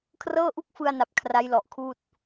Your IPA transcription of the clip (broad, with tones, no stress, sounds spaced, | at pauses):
kʰ r ɤː˥˩ ʔ u˥˩ k̚ f ɯ˧ a̯ n a˨˩ p̚ kʰ r a˦˥ j l ɔ˨˩ ʔ kʰ uː˥˩ t̚